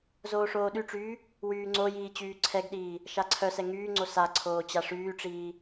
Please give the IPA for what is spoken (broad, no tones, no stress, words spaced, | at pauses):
zoːʂoːɗyʈ͡ʂyː | wyːŋ͡ǀojiː t͡ɕyːǀʰɛɡɗiː | ʃaǀʰœsɛ ŋyːŋ͡ǀo saǀʰoː t͡ɕaʂyːʈ͡ʂiː